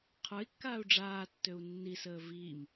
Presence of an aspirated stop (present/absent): present